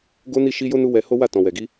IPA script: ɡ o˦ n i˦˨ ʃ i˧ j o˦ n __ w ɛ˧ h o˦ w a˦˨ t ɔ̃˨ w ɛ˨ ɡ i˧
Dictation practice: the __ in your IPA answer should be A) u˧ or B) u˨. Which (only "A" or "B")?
A